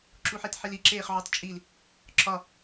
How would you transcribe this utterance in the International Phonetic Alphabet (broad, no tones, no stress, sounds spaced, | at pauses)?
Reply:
ǁ u ħ e t ħ i l i ǁ eː χ ʕ o tˤ t͡ʃʼ i l | ǁʰ ɒ